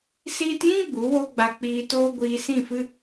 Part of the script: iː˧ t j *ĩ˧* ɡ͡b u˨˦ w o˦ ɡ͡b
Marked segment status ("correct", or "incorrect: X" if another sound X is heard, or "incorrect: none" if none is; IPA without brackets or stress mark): incorrect: ĩ˦